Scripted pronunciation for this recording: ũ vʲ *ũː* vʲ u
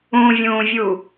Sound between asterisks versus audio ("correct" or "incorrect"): correct